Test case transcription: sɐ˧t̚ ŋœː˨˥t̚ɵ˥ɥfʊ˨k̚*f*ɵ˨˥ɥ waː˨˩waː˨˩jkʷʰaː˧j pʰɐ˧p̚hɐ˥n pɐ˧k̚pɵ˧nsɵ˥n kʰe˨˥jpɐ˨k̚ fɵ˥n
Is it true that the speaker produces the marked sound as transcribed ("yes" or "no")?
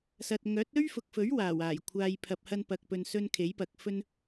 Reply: yes